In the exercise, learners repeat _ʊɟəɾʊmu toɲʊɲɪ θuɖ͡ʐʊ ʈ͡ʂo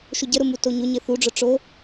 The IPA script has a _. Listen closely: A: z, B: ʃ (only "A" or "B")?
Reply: B